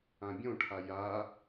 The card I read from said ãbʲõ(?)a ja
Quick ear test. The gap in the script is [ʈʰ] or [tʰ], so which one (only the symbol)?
ʈʰ